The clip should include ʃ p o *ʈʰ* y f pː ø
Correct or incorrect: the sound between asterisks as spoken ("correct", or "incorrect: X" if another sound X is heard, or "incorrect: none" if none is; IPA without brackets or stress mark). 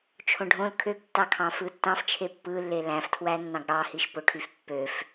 correct